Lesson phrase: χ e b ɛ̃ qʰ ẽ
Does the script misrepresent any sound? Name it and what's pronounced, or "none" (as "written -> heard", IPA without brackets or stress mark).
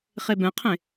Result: none